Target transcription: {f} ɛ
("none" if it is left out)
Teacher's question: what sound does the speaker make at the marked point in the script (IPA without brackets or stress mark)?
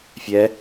fʲ